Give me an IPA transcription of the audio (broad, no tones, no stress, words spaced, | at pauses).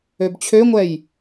øbt͡ɕʰøŋʷɛj